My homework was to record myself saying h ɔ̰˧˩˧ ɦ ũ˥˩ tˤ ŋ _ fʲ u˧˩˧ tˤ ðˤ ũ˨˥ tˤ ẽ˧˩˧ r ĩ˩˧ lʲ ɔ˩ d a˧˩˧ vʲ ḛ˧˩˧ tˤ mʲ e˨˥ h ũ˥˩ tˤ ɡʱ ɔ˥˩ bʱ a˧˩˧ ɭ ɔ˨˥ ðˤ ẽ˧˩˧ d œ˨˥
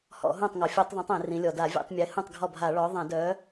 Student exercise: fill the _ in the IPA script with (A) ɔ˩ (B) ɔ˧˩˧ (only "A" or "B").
A